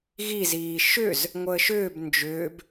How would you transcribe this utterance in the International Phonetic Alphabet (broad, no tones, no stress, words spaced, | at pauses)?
ɣiziː ʃʏz | ŋʷəːʃʏːb nd͡ʒʏːb